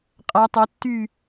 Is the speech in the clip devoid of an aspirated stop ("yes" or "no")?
yes